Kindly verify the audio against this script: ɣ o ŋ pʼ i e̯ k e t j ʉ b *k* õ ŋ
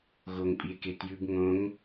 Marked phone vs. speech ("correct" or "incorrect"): incorrect